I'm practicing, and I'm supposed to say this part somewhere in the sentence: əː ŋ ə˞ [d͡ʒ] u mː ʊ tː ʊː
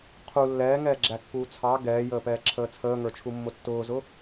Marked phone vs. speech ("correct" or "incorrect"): incorrect